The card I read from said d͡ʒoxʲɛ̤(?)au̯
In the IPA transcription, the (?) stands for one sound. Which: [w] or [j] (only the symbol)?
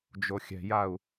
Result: j